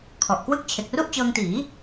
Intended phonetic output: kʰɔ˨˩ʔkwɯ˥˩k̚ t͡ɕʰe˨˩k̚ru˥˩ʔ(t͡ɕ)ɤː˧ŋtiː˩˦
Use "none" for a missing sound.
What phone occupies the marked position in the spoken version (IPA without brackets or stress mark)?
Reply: t͡ɕ